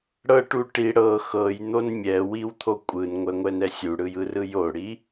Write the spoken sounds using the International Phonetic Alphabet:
ɽ ɤ ʈ u ʈ i ɽ ɤ x ɤ j n̪ o n mʲ ɛ w i w t̪ʰ o kʷʼ ɯ n ŋʷ ɛ ŋʷ ɛ n ɛ sʲ u ɽ ɯ j ɯ r ɯ j o ɽ i

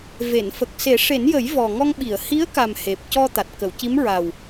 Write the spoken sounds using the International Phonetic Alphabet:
v e˨˩˨ n f ə˨˩ k̚ s e˨˩˦ ʂ e˨˩˦ n j ə˨˩˦ j v ɔ˨˩ ŋ ɔ˧ ŋ ɓ i˨˩˨ ə̯ h i˧˥ ə̯ k a˨˩ m h e˨˩ p̚ c ɔ˧ t̪ a˨˩ t̚ k ə˨˩˨ w c i˧˥ m ɹ a˨˩ w

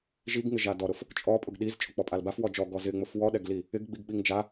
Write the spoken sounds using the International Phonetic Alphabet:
ʒ i ɡ ŋ ɪ ʒ a d ɔ ɾ ʊ f | t͡ʃʼ ɔ pʼ ʊ ɡ ɗ i z t͡ʃʼ ʊ k͡p ɔ pʼ a l b a f w ɔ d͡ʒ ɔ ɡ ɔ z ɪ ŋ͡m ʊ f w ɔ ɗ ɛ ɡ l i | ɪ ɡ ɡ͡b i ɡ ɓ i ŋ d͡ʒ a

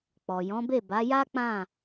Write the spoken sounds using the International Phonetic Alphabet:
k͡p ɔ˨ j ɔ̃˨˦ b e˦˨ b a˨˦ j a˦ k͡p ã˦˨

